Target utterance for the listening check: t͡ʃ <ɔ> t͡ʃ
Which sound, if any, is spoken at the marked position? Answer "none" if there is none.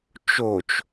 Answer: o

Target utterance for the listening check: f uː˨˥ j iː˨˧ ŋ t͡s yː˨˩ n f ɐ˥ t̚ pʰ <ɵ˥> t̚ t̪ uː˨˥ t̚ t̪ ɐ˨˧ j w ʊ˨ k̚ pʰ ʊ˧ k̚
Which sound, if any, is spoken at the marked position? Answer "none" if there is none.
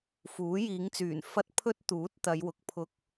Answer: ɵ˥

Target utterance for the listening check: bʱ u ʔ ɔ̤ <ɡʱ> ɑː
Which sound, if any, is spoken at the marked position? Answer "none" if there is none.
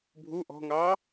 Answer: ŋ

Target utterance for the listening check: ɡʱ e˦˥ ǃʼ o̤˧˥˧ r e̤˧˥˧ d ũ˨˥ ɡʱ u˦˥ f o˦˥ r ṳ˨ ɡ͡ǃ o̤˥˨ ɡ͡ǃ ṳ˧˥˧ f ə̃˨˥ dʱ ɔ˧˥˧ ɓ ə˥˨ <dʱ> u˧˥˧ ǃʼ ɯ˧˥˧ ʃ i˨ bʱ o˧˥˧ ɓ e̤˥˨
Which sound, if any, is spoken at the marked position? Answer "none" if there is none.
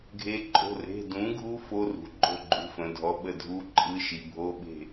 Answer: dʱ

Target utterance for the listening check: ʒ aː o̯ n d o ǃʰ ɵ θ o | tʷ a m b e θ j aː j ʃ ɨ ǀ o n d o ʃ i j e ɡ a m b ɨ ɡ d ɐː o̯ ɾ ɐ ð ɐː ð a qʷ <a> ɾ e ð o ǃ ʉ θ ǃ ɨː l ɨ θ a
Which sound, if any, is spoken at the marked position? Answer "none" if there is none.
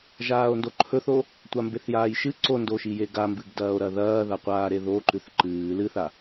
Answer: aː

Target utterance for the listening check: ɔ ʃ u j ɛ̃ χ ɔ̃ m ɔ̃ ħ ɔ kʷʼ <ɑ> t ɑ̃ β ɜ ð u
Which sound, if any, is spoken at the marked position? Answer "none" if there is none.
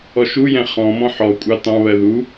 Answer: ɑ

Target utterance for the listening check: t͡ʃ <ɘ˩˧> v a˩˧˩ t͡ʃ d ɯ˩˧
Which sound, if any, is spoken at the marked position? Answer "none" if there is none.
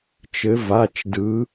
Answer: ɘ˩˧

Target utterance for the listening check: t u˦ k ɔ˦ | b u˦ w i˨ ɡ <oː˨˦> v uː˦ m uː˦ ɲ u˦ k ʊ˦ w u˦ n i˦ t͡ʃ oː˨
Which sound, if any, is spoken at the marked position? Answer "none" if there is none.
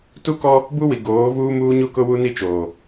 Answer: oː˨˦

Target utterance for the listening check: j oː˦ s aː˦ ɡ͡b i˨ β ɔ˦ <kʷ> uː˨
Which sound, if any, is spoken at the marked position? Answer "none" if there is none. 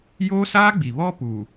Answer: p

